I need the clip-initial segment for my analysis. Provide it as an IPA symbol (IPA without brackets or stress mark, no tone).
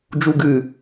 d͡ʒ